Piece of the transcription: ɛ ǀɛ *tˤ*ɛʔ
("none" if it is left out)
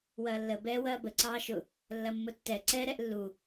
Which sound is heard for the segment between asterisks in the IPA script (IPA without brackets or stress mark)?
ɾ